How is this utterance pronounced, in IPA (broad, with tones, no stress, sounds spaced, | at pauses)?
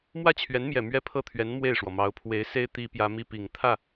m w ä˥˩ t͡ɕʰ ɥ ɛ˧˥ n m j ɛ˨˩ m ɥ ɛ˥ pʰ ɤ˥˩ t̪ʰ ɥ ɛ˧˥ n m w e˥˩ ɪ̯ ʂ w ɔ˩ m ɑ˧˥ ʊ̯ pʰ w e˧˥ ɪ̯ s e˥ ɪ̯ t̪ i˥ p j ä˥ m i˥ p i˨˩ ŋ t̪ʰ ä˥˩